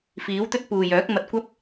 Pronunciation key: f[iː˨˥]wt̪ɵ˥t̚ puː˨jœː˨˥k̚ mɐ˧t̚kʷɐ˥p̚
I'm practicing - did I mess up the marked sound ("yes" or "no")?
no